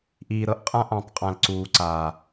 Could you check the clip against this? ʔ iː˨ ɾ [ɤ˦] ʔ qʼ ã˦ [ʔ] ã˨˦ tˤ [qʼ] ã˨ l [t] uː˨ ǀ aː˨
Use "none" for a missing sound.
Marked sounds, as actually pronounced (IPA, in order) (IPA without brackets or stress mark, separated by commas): ɤ˦, ʔ, qʼ, ǀ